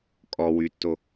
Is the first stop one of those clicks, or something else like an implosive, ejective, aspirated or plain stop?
ejective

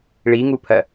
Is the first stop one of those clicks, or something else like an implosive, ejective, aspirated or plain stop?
aspirated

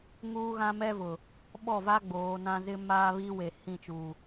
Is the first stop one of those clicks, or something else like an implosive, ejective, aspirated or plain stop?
implosive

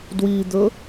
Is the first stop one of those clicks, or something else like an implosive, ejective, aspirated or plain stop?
plain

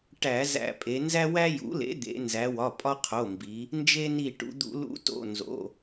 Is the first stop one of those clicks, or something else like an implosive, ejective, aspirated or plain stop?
plain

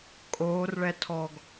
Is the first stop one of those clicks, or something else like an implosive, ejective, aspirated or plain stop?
ejective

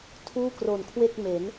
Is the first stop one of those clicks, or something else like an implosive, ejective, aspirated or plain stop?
aspirated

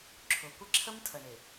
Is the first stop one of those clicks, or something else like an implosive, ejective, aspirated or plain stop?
click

